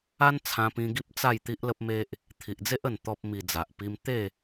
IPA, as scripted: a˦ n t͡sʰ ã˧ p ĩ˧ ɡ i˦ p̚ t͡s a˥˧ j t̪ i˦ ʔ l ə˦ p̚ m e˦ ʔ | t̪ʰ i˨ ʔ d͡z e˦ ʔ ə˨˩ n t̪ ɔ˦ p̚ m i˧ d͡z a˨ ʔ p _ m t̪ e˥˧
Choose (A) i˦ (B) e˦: A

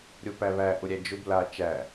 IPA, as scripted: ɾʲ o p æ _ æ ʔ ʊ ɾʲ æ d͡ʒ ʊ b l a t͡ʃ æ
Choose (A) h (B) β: B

